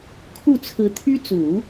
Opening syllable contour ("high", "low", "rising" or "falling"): falling